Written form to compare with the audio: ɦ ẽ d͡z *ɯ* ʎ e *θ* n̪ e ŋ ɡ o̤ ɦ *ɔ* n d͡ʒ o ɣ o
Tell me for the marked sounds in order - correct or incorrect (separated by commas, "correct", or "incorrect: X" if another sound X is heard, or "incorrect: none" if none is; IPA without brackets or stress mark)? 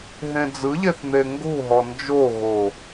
correct, correct, correct